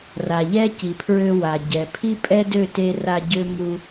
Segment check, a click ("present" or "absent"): absent